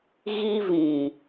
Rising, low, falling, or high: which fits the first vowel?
high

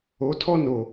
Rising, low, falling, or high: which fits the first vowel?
rising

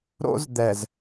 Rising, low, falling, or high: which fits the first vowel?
high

